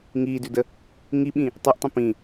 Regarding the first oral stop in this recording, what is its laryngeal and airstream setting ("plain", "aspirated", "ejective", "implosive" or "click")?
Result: plain